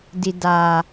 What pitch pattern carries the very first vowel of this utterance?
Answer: low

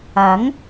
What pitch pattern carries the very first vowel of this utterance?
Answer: rising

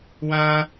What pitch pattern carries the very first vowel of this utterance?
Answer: high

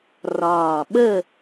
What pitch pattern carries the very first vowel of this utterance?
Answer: low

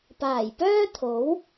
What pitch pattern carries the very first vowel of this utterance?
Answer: low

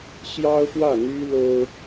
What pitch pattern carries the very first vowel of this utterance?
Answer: high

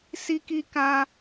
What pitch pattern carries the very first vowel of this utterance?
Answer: high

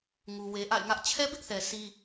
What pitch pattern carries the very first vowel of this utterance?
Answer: low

